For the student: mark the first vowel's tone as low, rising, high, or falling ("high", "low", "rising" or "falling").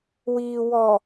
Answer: low